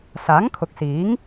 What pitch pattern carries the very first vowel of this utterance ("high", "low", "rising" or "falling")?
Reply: rising